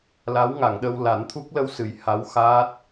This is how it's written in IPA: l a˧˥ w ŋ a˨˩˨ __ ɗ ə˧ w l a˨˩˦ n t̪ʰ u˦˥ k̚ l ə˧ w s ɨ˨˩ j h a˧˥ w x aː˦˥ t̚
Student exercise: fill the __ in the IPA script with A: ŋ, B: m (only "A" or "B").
A